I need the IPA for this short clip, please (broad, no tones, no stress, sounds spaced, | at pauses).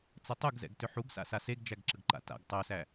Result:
t͡s ə tˤ u ɡ z ɛ̰ ɡ t ʏ ħ u ɡ s a̰ s a s e ɡ d͡ʒ æ ɡ ǁ ə ɡ ǃ a̰ t a̰ ɡ tˤ o s æ